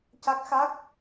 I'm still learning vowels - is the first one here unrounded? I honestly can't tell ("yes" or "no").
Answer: yes